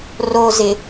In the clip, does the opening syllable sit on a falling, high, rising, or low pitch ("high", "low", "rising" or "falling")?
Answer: low